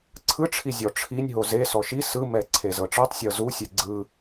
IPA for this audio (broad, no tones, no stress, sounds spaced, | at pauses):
ǀʰ ɯ ʈ͡ʂʰ i zʲ ɔ ʈ͡ʂʰ i nʲ ɦ o z e s ɔ ʃ i s ɯ m ɛ ǀʰ e z ɤ ʈ͡ʂ ɤ tˤ sʲ ɤ z u sʲ ɛ ɡ͡ǀ ɯ